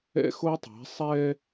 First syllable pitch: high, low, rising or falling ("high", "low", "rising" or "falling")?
high